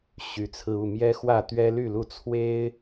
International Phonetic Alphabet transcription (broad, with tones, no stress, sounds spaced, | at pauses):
ɕ y˨˦ t͡sʰ ɹ̩˧ u˥˨ m j ɛ˦ x w ä˥˨ t̪ ɥ ɛ˦ l y˥˨ l u˥˨ t͡sʰ w e˦ ɪ̯